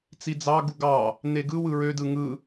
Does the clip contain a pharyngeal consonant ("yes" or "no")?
no